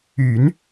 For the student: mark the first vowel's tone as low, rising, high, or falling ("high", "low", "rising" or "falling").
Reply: low